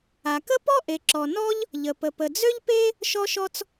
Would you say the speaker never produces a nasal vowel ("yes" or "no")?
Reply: yes